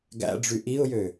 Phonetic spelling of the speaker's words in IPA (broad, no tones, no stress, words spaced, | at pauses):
ɡæ̰ɖ͡ʐy ʔiʊ̯jø